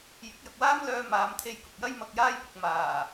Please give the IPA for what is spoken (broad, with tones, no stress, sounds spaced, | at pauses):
j ɪ˨˥ k̚ j ɐ˨ k̚ w aː˥ m l œː˧ m aː˨˧ m t̪ʰ e˧ j k ʊ˨ k̚ j ɐ˥ j m ɐ˧ k̚ j aː˥ j p ɪ˨ k̚ m aː˨˩